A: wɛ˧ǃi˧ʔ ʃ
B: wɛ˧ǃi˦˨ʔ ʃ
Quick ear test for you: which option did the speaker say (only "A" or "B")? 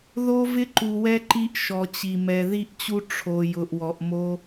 A